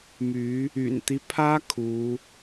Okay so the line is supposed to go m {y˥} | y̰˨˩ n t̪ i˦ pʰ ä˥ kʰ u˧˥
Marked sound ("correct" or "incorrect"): incorrect